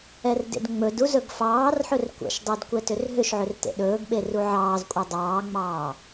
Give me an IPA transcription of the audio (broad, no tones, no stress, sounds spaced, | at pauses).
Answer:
ɛ r d ḛ d ŋ͡m ɵ d u z ɵ ɡ f ɑː r ħ ɵ r kʷ ɛ̰ ʃ dˤ e d kʷ ɛ t ʏ r ɦ ʏ ʃ ʕ ʏ r t ḛ ɗ ɵː ɡ ɓ e r u ʕ ɑː z kʷʼ e dˤ ɑː ŋ͡m ɑː